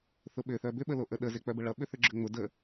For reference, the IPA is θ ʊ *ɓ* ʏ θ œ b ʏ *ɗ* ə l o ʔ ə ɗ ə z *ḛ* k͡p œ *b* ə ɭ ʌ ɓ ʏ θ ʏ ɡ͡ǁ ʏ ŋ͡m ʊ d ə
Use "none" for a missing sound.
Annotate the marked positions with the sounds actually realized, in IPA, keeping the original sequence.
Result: ɓ, ɓ, e, b

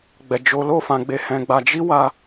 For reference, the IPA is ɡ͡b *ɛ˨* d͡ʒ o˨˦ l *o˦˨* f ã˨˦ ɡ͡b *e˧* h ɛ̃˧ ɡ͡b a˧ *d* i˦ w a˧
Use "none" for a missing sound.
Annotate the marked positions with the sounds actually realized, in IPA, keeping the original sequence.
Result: ɛ˨, o˦˨, e˧, d͡ʒ

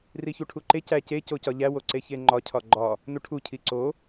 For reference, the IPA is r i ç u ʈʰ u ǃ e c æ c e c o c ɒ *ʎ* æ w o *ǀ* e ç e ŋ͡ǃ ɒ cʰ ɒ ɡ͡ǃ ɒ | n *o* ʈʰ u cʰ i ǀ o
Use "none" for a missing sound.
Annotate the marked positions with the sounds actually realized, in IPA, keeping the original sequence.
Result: ʎ, ǀ, u

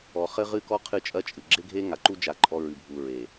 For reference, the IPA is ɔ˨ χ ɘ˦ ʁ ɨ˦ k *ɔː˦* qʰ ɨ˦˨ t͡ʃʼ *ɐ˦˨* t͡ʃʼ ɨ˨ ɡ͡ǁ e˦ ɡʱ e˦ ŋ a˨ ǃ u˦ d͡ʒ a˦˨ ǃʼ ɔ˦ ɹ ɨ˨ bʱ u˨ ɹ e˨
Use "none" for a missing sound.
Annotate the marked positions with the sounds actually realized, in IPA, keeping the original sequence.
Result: ɔ˦, ɐ˦

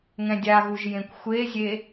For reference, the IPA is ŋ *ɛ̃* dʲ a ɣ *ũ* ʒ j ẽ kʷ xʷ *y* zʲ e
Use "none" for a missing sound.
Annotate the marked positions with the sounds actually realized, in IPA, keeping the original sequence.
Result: ɛ̃, u, e

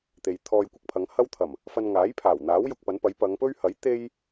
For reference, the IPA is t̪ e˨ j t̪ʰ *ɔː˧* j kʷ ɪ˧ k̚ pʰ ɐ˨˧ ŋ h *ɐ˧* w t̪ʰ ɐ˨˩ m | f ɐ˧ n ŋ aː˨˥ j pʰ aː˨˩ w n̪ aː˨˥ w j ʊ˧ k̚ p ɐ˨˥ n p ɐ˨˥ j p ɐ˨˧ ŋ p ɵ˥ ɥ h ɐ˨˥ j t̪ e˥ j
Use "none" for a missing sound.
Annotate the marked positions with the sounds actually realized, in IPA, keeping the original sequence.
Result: ɔː˧, ɐ˥

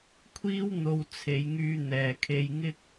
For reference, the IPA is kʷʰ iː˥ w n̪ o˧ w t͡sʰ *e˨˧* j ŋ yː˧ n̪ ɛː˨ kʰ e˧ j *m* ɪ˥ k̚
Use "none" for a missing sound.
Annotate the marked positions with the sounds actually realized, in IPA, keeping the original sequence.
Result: e˨˧, ŋ

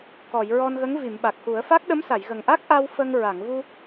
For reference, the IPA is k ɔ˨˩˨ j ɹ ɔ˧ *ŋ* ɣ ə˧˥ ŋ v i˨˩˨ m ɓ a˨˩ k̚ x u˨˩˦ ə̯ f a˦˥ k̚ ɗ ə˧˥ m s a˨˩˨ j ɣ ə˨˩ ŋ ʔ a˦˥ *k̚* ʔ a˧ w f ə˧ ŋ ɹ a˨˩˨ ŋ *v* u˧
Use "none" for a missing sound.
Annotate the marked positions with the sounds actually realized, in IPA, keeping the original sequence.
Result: n, k̚, v

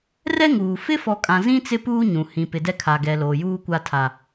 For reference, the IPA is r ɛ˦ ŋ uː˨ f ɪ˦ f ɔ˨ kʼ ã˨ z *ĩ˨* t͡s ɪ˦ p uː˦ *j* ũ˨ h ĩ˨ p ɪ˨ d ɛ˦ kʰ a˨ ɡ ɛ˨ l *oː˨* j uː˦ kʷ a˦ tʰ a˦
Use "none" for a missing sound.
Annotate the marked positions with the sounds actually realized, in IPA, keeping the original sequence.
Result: ĩ˦, ɲ, oː˨

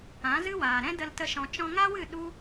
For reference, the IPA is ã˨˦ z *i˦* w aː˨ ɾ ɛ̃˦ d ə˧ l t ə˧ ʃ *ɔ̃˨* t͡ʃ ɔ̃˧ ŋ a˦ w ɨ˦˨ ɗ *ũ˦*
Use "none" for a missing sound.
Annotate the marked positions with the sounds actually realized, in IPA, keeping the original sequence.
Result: ɨ˦, ɔ̃˨, u˦

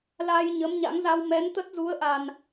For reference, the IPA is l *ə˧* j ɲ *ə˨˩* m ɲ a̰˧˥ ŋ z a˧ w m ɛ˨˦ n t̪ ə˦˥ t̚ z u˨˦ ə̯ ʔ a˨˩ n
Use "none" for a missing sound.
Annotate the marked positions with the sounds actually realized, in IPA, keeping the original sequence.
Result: a˧, ə˨˦

